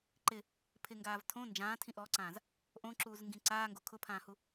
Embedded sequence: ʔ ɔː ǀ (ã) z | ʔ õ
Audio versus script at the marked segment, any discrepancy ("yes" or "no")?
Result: yes